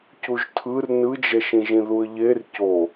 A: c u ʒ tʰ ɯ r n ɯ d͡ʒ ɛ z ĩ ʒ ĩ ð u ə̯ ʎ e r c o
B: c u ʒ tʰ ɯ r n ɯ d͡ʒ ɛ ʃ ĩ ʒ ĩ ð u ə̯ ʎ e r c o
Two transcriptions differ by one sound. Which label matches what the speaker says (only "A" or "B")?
B